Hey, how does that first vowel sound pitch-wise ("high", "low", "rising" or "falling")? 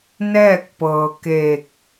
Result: falling